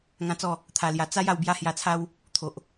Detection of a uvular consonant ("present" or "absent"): absent